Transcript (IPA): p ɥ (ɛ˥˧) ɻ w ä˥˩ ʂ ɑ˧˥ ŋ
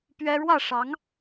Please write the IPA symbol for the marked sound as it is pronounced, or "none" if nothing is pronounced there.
ɛ˥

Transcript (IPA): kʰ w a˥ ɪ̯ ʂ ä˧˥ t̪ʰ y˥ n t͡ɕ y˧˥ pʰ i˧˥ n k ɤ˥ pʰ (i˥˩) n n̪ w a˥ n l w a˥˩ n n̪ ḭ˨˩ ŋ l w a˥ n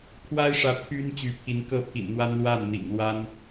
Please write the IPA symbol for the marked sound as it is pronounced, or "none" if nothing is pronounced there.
ḭ˨˩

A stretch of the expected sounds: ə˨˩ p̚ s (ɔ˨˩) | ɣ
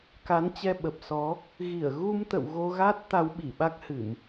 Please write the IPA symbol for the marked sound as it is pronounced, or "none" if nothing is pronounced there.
ɔ˨˦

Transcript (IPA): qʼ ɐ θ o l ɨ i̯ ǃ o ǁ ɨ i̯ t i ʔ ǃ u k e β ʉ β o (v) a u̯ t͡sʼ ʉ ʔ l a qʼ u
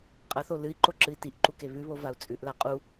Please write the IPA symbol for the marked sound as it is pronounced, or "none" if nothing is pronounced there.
v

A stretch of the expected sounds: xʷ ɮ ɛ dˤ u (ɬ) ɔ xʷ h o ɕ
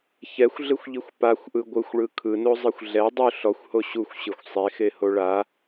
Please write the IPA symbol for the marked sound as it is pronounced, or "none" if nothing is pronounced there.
ɬ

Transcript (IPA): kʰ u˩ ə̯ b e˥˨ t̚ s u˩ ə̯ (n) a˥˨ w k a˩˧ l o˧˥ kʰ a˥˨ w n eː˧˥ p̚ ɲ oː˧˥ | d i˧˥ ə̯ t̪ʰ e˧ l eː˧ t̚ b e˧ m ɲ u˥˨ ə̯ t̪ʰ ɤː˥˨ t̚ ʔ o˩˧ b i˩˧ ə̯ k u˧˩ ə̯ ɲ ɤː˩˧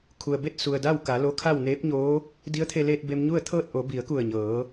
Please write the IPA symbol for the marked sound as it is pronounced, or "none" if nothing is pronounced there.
d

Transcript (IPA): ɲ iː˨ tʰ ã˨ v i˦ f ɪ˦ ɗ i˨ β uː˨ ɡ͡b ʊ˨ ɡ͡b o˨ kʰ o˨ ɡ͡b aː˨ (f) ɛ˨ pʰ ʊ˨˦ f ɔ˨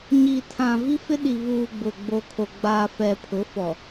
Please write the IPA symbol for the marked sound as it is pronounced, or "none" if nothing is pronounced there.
f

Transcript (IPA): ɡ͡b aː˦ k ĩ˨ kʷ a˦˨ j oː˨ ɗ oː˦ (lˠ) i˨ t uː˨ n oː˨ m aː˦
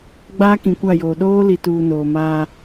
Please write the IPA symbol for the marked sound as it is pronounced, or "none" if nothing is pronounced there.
l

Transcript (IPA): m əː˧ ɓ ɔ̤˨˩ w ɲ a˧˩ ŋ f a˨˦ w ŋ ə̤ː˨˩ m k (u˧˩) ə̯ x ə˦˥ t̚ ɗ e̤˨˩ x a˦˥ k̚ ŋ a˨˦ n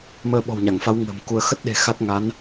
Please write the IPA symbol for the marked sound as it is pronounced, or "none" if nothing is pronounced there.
u˧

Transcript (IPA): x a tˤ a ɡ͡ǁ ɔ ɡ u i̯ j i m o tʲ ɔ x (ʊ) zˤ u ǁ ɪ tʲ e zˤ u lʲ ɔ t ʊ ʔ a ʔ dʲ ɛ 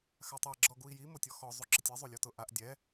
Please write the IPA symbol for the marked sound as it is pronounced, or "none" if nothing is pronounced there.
ɔ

